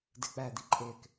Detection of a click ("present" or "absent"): present